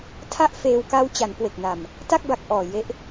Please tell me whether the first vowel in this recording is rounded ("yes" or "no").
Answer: no